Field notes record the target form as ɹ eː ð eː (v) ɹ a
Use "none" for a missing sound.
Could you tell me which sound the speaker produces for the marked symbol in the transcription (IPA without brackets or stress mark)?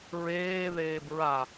b